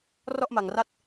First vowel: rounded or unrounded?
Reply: rounded